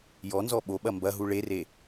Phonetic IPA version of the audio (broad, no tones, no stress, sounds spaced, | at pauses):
j ɔ n z ɔ ɓ o ɓ ɐ m b ɐ ɦ u ɭ e r e